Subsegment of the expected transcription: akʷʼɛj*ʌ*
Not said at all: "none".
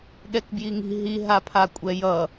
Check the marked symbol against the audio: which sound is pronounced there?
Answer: ʌ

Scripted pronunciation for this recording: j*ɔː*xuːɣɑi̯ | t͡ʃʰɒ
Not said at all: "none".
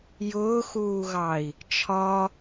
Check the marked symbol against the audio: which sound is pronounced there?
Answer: ʊː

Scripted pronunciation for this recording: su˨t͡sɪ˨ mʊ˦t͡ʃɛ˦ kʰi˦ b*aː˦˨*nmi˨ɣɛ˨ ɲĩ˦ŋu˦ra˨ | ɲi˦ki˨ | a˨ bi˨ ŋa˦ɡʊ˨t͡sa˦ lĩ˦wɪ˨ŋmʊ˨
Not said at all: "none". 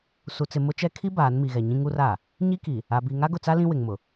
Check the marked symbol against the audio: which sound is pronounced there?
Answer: aː˨˦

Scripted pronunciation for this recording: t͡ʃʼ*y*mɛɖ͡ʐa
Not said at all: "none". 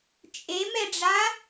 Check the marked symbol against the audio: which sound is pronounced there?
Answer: e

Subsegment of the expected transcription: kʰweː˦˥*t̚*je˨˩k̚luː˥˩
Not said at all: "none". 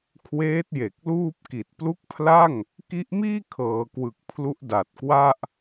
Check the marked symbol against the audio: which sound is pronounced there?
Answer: t̚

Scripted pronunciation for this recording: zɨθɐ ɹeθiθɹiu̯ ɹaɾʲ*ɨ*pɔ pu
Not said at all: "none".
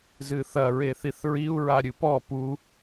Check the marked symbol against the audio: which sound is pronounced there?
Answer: ɨ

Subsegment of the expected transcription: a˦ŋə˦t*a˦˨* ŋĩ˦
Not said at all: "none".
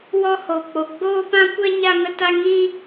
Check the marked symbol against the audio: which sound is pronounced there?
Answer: a˦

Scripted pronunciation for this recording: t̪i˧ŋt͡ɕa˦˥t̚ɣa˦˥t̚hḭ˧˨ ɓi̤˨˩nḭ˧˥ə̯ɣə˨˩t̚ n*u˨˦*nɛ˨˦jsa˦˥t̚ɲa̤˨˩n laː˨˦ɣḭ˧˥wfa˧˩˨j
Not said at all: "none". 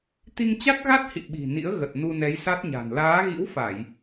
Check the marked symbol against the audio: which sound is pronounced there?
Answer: u˧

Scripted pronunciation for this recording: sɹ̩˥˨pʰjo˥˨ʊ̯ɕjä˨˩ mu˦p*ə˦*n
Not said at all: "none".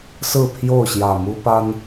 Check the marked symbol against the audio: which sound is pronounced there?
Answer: a˦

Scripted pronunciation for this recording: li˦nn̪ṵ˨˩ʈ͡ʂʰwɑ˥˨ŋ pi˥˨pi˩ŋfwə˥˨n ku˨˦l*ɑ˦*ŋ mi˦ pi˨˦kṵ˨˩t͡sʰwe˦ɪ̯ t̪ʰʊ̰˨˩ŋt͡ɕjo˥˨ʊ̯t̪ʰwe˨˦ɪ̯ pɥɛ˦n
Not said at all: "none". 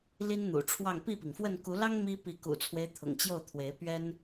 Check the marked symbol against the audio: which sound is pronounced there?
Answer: ɑ˦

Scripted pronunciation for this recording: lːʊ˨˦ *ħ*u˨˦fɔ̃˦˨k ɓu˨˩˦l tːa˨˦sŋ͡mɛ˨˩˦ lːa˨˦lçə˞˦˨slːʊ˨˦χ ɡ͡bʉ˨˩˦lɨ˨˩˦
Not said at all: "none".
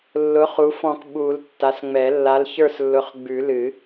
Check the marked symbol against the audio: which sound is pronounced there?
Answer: χ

